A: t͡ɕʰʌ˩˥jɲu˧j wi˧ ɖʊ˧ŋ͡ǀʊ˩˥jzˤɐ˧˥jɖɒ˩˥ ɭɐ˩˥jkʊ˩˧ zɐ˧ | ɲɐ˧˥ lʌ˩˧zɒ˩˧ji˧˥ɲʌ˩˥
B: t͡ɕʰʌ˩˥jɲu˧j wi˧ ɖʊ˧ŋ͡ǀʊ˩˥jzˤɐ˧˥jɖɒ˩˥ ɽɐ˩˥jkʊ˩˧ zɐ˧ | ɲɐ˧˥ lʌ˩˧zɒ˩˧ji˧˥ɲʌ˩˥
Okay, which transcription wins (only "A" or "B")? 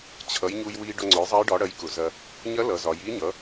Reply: B